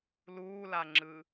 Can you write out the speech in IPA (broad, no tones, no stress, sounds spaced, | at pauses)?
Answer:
l uː l a ŋ͡ǁ ɯ